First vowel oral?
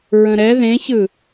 no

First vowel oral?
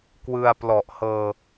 yes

